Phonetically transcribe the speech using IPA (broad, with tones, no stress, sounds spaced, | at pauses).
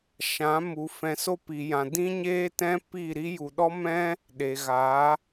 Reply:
ʃ ã˨˦ m u˨ f ɛ̃˨ s o˧ p i˨ j ã˨ d ĩ˦ ɲ eː˦ t ɛ̃˦ p iː˦˨ ɾ i˦ j u˨ ɗ ɔ˦ m ɛ̃˦ | ɗ e˨ ɣ a˨˦